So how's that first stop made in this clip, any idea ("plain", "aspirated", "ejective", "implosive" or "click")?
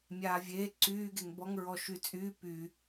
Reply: click